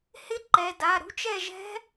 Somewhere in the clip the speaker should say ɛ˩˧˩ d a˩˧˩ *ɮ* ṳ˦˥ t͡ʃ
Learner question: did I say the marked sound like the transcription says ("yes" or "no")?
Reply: no